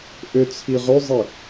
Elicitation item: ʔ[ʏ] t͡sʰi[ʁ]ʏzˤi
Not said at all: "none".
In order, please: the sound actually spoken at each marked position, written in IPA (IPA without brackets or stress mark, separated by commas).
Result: ʏ, ʁ